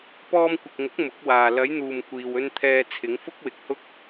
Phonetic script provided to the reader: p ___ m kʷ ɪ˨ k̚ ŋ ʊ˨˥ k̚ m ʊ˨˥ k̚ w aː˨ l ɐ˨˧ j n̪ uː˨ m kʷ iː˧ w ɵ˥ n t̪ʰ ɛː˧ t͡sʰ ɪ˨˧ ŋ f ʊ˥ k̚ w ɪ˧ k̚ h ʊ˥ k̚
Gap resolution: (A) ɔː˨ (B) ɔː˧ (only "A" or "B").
B